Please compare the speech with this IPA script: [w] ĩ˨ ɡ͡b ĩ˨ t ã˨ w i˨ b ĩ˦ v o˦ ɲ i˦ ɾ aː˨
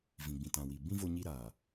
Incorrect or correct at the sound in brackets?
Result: incorrect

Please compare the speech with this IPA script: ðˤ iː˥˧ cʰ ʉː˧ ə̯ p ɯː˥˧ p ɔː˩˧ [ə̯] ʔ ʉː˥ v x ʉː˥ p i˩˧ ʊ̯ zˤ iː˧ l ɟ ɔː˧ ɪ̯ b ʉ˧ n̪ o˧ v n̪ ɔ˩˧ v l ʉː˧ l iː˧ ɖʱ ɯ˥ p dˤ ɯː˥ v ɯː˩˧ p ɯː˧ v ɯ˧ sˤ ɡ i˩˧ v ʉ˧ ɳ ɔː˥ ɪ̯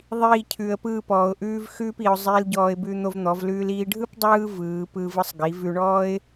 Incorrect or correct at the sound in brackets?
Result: incorrect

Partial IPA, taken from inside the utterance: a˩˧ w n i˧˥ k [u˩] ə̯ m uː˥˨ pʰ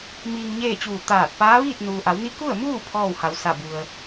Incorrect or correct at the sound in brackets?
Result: incorrect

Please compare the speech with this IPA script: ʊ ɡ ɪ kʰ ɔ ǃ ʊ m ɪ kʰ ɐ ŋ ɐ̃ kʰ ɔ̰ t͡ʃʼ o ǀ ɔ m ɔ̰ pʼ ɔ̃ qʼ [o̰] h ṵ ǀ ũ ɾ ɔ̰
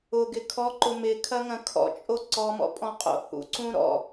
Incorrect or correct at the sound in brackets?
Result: correct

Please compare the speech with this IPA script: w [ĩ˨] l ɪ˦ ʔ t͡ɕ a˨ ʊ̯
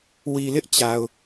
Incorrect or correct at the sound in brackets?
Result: incorrect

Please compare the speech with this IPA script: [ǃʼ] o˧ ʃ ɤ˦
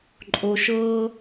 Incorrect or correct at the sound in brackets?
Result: correct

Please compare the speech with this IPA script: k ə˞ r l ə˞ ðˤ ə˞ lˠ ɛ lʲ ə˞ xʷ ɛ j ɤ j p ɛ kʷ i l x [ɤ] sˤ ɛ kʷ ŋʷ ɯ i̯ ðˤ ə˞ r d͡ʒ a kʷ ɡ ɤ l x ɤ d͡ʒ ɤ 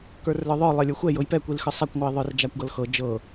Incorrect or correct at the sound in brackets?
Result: incorrect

